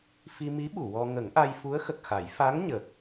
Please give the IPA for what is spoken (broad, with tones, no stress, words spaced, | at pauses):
fi˧mi˧˥ ɓu˨˩˨wɔ˧ ŋə˨˩˦ŋʔa˧jfu˧˥ə̯ xə˨˩k̚xa˨˩˦j fa˧˥ŋ ɲə˨˩k̚